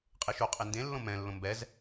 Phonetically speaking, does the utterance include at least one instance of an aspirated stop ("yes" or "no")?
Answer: no